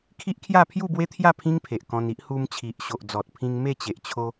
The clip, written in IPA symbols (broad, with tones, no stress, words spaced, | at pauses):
kʰi˦ʔ kʰja˥˧ pʰju˥˧bwe˦t̪ʰja˥˧ pʰĩ˦ŋpʰe˨ʔ kɔ̃˧ni˦ʔ hu˧mt͡ɕʰi˨ʔ ɕo˨ʔd͡zɔ˨t̚pʰĩ˧ŋ me˥˧t͡ɕe˨ʔt͡ɕʰo˧